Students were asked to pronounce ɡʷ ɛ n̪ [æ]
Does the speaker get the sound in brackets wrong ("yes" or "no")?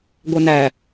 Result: no